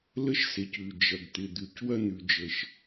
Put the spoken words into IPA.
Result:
lə˥ʃse˩c ʉ˩ d͡ʒɐ˩ɡt̪ɪ˩d̪ʉ˩c wɐ˥n̪ʉ˩d͡ʒə˩ʃ

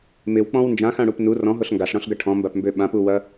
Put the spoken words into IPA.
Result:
mɪwk͡pɔ̃w nd͡ʒãxãɽup nu rɔ̃ɦoɬ ŋɡaɬɽɔ̃ɬɡɐ ʈʰɔ̃mbapmbø ɓãpuwɐ

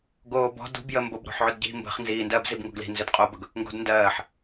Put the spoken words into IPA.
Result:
ɡoːbɔ̤ dṳbjə mbobɾo̤ħʕʏdɟi̤ mbə̤χ nziːndɜːbzib ŋo̤ɡli̤ nzʏdqʼobɵɡ | ŋɡo̤dndɜːħ

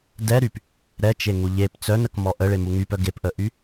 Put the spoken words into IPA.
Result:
dɛɾyp | ɾɛt͡ʃeŋu ʎep t͡sœnəkmɔ ʔəɭemu ŋypœ ɡepʔəʔy

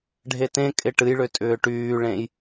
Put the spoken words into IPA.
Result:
ɖʱetẽkʼɪ ʈɨjɭʏ tʼʏːʈyːɭẽj

